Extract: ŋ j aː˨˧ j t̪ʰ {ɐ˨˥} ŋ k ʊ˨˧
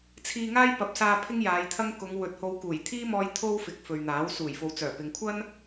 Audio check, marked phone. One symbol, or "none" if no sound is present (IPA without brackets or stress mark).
ɐ˥